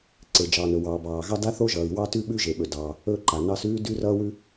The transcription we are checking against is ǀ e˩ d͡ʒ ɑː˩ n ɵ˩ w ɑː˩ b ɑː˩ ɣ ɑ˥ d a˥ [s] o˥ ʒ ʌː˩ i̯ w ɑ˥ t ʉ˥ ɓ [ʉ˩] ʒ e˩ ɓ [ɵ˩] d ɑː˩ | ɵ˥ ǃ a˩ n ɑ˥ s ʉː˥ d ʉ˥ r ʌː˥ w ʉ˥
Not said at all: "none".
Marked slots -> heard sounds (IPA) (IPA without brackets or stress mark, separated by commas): θ, ʉ˥, ɵ˩